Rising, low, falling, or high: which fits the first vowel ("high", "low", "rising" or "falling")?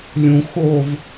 low